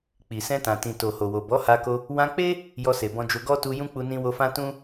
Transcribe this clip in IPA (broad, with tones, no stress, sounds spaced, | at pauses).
k͡p i˨ s ɛ̃˧ t ã˨ t ĩ˨ t o˨ h o˨ w o˨ b ɔ˨˦ h a˧ k o˧ | w ã˧ k͡p e˦ | j ɔ˧ s e˨ b ɔ̃˧ d͡ʒ o˧ ɡ ɔ˦ t u˧ j ũ˦ k͡p u˧ n ĩ˧ w o˧ f ã˦ t ũ˦